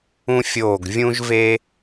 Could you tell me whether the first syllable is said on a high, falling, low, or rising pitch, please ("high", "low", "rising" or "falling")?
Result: high